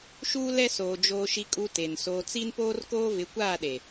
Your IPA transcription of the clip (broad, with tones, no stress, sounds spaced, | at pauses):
ʃ uː˦ l ɛ˦ s oː˨ d͡ʒ oː˨ ʃ i˨ kʼ u˨ t e˨ n s oː˨ t͡s i˦ n p oː˦ r k oː˦ v ɪ˨˦ kʷ aː˦˨ ɗ e˨